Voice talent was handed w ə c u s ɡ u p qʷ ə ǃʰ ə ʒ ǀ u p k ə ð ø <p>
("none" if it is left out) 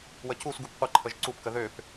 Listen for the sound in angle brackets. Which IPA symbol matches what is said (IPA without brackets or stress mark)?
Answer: p